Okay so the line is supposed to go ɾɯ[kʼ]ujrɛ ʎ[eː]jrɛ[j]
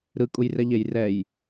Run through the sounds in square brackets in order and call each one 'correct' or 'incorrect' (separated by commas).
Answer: correct, incorrect, correct